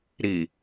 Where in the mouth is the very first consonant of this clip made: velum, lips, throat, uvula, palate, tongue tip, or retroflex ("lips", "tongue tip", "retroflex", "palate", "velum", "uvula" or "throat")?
tongue tip